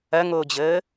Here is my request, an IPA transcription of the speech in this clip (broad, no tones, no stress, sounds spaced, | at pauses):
ɐ ŋ oː d͡ʑ əː